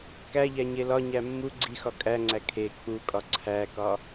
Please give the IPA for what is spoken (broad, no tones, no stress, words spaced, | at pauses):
kæʎæɲe lɒɲæ mːu ɡ͡ǀixɒ kʼæŋ͡ǀæ kʰe k͡pukʼɒ ǀʰækɒ